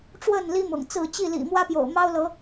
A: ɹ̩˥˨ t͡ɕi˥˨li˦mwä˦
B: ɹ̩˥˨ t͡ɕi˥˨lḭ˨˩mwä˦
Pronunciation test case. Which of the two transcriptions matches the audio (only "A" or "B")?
B